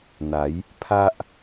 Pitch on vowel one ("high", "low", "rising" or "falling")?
rising